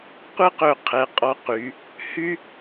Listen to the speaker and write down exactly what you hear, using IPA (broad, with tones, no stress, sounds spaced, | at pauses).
qʷ ɛ˥ q ɵ˧˩ qʰ ɛ˩˧ qʼ ɔ˧ q y˩˧ | h y˥